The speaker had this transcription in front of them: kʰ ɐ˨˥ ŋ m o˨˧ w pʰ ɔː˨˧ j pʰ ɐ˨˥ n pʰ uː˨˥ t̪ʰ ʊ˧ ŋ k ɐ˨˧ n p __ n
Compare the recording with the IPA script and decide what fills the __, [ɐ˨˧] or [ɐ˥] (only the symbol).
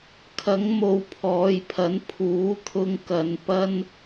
ɐ˥